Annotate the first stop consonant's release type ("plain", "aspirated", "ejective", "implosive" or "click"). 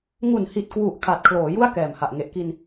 plain